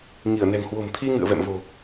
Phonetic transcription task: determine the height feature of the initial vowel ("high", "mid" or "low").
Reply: high